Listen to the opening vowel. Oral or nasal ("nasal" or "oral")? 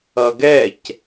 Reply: oral